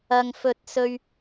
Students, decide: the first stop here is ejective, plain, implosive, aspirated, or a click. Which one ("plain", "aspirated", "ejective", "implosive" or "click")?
plain